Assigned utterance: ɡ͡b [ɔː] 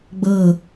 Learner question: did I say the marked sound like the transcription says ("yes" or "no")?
no